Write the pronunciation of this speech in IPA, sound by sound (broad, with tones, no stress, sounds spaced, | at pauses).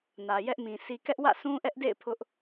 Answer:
n ä˨ j ɛ˦ ʔ m ĩ˨ sʰ i˨ k ɛ˦ ʔ w ä̰˦˨ sʰ ũ˦ ʔ ɛ˦ ʔ d ḛ˦˨ ɪ̯ pʰ ʊ˦ ʔ